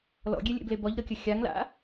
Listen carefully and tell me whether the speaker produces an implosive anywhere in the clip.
no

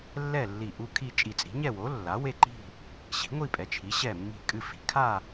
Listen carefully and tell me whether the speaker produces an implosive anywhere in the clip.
no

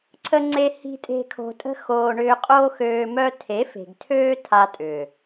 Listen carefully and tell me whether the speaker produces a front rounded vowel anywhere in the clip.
yes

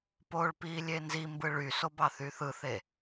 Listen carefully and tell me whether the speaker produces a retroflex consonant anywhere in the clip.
yes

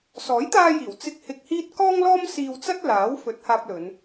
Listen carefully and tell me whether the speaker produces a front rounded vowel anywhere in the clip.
no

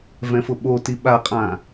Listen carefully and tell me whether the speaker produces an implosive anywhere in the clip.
yes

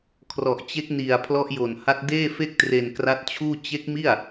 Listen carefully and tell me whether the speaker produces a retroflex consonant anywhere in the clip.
no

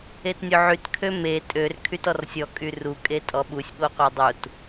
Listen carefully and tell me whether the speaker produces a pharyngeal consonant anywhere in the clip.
yes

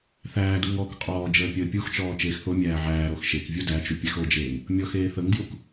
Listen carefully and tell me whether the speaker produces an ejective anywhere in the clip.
yes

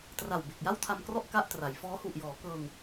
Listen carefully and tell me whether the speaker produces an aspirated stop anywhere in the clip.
yes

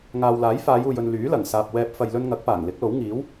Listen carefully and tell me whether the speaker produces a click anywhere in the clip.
no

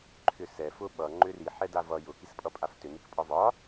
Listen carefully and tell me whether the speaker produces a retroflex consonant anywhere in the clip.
no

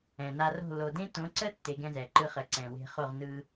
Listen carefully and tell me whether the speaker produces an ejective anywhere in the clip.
no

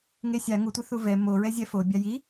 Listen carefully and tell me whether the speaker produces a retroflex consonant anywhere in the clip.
no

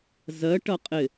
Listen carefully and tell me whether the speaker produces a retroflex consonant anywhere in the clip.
yes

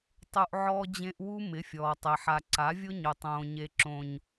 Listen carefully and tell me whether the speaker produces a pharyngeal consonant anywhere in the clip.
yes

